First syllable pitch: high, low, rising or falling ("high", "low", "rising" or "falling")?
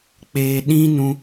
low